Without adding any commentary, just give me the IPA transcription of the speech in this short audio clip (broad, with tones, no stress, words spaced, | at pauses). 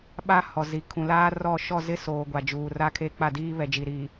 ɓa˦ hɔ˨ zi˨ kʰũ˨laː˦rɔ˦˨ ʃɔ˦˨zɪ˦ soː˨ ɡʷa˨d͡ʒuː˨ra˦kʰe˦ k͡pa˦˨diː˦βɛ˨d͡ʒi˨ ɾi˨